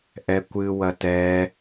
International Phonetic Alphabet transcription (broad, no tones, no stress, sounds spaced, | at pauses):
ʔ ɛ kʷ ɨ w ɐ t ɛː